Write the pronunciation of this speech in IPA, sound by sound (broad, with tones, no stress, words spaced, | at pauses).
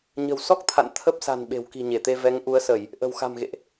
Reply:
ɲə̤˨˩wsɔ˦˥k̚t̪ʰa̰˧˨n t̪ʰə˦˥p̚sa̤˨˩n ɓe̤˨˩wki̤˨˩ɲe˧˩t̪e˧ vɛ˨˦ŋ ʔu˨˦ə̯sə˧˩˨j | ʔə̤˨˩wxa̤˨˩mɣḛ˧˨ʔ